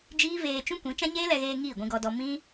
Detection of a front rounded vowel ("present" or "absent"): absent